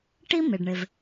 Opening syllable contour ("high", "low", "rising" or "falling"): high